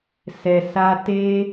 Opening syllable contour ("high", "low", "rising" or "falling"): low